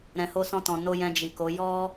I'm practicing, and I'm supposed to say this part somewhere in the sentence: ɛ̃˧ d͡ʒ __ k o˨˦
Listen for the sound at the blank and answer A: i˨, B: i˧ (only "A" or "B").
A